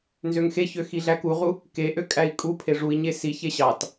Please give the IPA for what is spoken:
n z ø ŋ x e ç ø x i ɮ æ k u ʁ u | k e ʔ ø kʼ æ i̯ kʼ u pʰ e ʐ u i̯ ɲ e s i ç e ɕ ɑ t

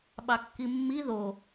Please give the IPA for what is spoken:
ɓ ɑ kː i mː i ð o

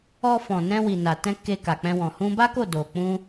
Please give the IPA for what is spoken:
ɔ˧ f ɔ̃˨ n ɛ̃˧ w i˨ n a˨ t ɛ̃˧ k e˧ k a˨ k͡p ɛ̃˧ w ɔ̃˨ h ũ˧ b a˦ k o˦˨ d o˨ k͡p ũ˧

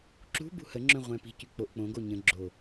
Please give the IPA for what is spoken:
ǁ ṳ b ṳ h ə ŋ͡ǁ œ̃ ʁʷ ɛ̃ p i̤ c y k͡p o ʔ k͡p õ ɡ o ɲ ə̃ ɡ͡ǁ o

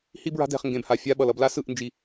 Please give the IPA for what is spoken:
h i˦ b ɹ a̤˦ d ɛ̤˦˨ χ ŋ ɡ ẽ˨ b h a˨ fʲ a˦ ɓ ʌ˨ l ʌ˨ b l a˦ s ɯ˦˨ ʔ n d͡ʒ i˨

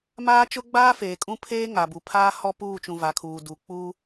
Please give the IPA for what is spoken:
m aː˦ t͡ʃ ʊ˦ ɡ͡b aː˦ f eː˨ kʼ ũ˦ pʰ eː˦ ŋ a˨ b u˨ pʰ aː˦ h ɔ˦ p uː˦˨ t͡ʃ ũ˨ v a˨˦ kʰ uː˨ d u˨ k͡p u˦

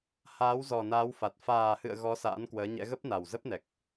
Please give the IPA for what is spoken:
h aː˨˦ w z ɔ˨˩ n aː˨˦ w f a˨˩ t̚ f aː˨˩ h ɨ̰˧˨ ə̯ ɣ ɔ˨˦ s a̰ː˧˥ n k w əː˨˦ ɲ ɛ̰˧˥ ɣ ə˦˥ p̚ n a˨˩ w z ə˦˥ p̚ n ɛ˨˩ k̚

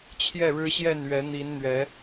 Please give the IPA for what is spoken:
t͡ɕʰ j ɛ˥˨ ɻ ɻ̩˦ ɕ j ɛ˥˨ n ɥ ɛ˨˦ n̪ i˨˦ n n̪ ɥ ɛ˨˦

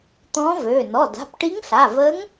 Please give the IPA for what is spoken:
t̪ ɔ̃ː˧˥ v øː˩˧˩ n ɔ˩˧˩ d a̤˩˧˩ p ʈ i˧˥ ŋ ɬ a˩˧˩ v əː˧˥ ŋ

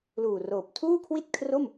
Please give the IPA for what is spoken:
l uː˨˩ r oː˨˩ p̚ tʰ uː˥˩ kʰ w i˥˩ t̚ kʰ r o˥˩ m

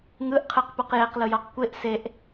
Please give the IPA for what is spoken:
ŋ ɯ ʔ qʰ ɯ q p u q j e q l ɯ j ɔ q kʷ e ʔ s e ʔ

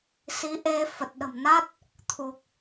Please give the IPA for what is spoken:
s i˨˦ ʔ e˧ f ə˨˩ t̚ ɗ ə̤˨˩ m n a˦˥ t̚ | t̪ʰ u˨˩ k̚

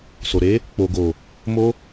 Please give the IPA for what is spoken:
s o˨ ɾ e˨˦ | k͡p o˨ ɡ o˨ | m o˧

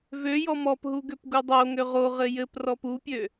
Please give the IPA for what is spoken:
v ø j ɔ m ɔ p ɦ u ɡ ø p ɡ u dˤ o ŋ ø ʁ o ʁ ɘ j ɘ p r ɔ p u pʲ ø

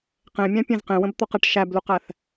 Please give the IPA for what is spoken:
q ẽ mʲ æ̃ pʲ ẽ z q ẽ w ə̃ b t̪ ɔ q ə ʈ ʃ æ b l u q æ θ

